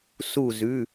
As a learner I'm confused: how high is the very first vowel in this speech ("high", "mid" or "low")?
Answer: high